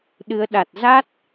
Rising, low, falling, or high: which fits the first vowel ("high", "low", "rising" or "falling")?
rising